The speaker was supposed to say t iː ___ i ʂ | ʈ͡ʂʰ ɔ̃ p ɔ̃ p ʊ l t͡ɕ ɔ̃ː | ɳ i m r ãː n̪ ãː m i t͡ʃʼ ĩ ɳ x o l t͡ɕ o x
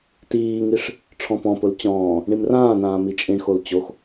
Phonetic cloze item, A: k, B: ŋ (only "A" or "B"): B